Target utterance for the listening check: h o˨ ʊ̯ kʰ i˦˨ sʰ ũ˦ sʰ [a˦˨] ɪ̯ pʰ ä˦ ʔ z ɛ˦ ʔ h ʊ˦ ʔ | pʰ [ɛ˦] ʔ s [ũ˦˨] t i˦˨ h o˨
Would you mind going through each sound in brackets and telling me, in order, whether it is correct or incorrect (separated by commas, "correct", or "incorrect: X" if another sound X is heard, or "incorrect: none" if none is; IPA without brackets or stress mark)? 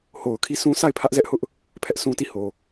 correct, correct, incorrect: ũ˦